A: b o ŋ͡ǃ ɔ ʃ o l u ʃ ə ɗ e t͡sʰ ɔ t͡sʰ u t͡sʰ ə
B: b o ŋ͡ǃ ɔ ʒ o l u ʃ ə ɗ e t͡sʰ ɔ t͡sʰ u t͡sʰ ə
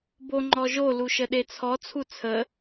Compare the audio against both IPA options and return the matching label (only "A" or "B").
B